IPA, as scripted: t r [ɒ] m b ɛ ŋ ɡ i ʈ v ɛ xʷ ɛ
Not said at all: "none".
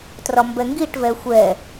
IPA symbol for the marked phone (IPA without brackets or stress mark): ɒ